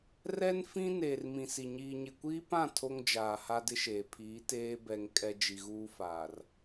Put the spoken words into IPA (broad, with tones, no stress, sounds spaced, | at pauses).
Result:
r ɛ˦ n f ĩ˦ n eː˨ r m ĩ˨ s i˨ ɲ iː˨ ɲ ɪ˨ kʷ iː˦ p ã˦˨ tʰ o˦ ŋ d͡ʒ aː˨ h a˦ d ɪ˦ ʃ eː˨ pʰ iː˨˦ t eː˦ b ɛ˨ ŋ kʼ ɛ˦ d͡ʒ i˨ ɣ uː˦ f aː˨ r